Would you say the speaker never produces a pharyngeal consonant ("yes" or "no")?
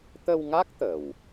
yes